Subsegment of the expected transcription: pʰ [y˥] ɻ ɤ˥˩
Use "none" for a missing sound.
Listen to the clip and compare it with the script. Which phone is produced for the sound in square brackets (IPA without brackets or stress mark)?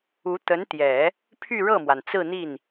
y˥˧